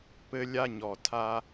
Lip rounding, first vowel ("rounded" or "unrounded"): unrounded